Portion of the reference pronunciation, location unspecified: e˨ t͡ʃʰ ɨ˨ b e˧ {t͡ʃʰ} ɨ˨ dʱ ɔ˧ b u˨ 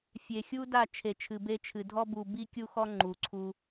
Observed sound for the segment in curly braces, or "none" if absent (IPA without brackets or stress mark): t͡ʃʰ